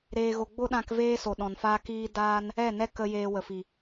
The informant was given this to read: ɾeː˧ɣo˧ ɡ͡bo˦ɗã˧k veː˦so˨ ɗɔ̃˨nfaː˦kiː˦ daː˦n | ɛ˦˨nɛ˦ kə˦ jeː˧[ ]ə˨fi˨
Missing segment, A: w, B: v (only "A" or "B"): A